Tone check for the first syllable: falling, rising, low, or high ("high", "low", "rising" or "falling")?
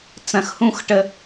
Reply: low